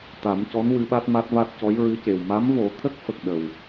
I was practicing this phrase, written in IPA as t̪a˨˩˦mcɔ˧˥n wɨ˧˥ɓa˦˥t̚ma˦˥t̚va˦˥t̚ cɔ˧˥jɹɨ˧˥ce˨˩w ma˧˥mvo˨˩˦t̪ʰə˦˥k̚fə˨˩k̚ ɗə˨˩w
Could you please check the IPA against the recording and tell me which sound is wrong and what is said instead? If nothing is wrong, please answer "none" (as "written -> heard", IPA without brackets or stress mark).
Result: none